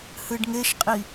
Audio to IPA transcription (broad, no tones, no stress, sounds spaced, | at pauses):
h ɨ ɖ ŋ e ʃ qʼ i